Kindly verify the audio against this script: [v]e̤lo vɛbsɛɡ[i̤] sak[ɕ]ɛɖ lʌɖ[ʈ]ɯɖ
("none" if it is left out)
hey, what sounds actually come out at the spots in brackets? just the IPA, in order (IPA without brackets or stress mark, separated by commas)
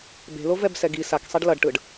b, i, sˤ, ʈ